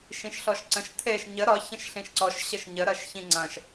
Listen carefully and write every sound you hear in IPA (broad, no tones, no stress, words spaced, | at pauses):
ʃĩʃɬɔʃǀə̃ʃ t̪ʰeʃ ɲə ɾɒ çə̃ʃɬĩʃǀɔʃ ɕəʃɲə ɾɐʃçĩŋ͡ǀɐ̃ʃ